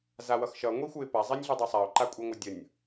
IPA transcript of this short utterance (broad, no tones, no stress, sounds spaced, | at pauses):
z a w ʌ x ʃ ʌ ŋʷ i xʷ ɯ ɪ̯ p a zˤ i nʲ ɮ ɯ dˤ e sˤ a ʊ̯ ǃ a kʷʼ i ŋʷ ʌ dʲ ʌ nʲ